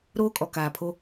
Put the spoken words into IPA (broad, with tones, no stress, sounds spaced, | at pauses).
ɾ oː˦ kʼ ɔ˨ k aː˨ pʰ o˦